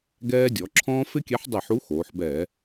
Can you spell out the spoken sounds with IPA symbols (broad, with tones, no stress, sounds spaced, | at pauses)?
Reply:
ɡ ɛː˦ dʲ ɔ˩˧ ǁʰ ɔ̃ː˦ f ɪ˦ kʲ ɛ˨˥ ħ dˤ e˧˩˧ ħ u˨˥ x oː˩˧ ħ b ɛː˧˩˧